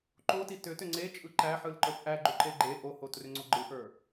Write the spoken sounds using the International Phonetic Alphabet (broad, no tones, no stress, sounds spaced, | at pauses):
ǃ o t i t ʏ t ʏ ŋ͡ǀ e t͡ʃʼ ɯ ǃ æ ħ ɯ l ǃ ə˞ p ʔ æ ɡ͡ǃ ʏ ǃ e ɡ͡ǃ e ʔ o h o t r ʏ ŋ͡ǀ o ɡ͡ǃ ɯ ʔ ə˞